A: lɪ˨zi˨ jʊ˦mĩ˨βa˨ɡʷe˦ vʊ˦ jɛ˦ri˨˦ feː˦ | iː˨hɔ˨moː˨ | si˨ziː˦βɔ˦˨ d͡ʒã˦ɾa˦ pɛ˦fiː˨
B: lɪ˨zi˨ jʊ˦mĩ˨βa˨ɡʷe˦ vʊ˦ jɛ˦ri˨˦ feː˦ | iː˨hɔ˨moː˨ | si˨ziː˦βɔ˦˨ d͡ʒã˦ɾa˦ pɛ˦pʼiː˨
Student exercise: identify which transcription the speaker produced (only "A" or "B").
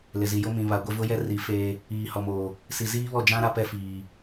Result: A